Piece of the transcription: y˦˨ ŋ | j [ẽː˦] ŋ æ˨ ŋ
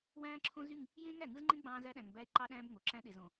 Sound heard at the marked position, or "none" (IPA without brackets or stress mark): ẽː˦